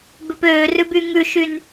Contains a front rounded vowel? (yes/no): yes